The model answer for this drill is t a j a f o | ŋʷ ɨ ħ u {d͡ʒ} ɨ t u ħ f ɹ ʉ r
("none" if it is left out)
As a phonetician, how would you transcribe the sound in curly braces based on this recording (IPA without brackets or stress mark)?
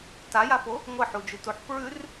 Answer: d͡ʒ